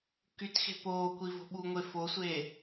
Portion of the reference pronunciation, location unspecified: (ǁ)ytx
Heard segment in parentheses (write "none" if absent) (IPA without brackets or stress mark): k